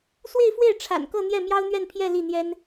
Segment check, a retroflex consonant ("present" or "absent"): present